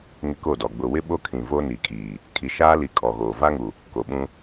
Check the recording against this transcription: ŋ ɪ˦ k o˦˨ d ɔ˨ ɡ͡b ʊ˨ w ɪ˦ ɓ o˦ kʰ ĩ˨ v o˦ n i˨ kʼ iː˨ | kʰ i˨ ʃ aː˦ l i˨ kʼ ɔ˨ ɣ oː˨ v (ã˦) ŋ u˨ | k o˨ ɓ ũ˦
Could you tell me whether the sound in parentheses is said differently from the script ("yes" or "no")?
yes